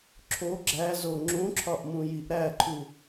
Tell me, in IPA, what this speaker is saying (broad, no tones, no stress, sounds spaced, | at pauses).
ǁʰ o ɡ͡ǁ æ z o ŋ͡ǁ ũ ǁʰ ɒ ʔ m ũ j i ʔ ɾ æ ǃʰ u